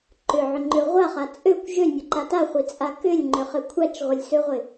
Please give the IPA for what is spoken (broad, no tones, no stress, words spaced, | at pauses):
ǃʏʕʏŋ͡ǃø ʁʷaχa t͡sʼøkʷ ʒønʲøǃa taχʷit͡sʼa kʏlʲŋ͡ǃʏχɘ kʷʰat͡ʃʁʷɘlʲsøʁʷɪ